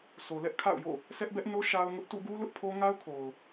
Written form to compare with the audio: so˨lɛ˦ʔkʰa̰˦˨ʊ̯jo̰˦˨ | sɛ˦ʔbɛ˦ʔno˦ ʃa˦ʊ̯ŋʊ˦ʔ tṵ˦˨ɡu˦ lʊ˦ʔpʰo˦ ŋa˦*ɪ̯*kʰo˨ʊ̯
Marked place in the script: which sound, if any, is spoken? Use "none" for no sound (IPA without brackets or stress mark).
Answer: ʊ̯